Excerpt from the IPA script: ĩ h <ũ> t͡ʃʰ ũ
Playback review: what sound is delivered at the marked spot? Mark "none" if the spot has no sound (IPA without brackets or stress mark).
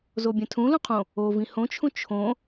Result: õ